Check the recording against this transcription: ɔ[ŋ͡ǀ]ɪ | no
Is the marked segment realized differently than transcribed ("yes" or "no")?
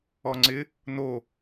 no